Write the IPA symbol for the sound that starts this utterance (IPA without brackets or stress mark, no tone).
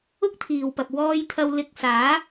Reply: ʊ